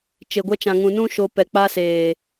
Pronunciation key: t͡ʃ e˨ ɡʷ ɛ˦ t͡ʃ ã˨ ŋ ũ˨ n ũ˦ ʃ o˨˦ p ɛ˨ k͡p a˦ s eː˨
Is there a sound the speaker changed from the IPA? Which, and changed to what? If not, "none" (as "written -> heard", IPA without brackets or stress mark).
none